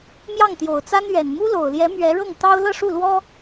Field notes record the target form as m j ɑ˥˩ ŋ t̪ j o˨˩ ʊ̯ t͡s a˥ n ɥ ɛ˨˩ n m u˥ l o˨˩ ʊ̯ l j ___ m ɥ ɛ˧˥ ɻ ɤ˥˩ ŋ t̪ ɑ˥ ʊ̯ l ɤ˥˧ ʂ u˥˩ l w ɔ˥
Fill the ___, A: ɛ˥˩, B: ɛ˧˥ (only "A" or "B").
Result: B